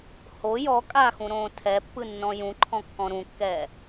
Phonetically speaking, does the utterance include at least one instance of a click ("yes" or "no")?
yes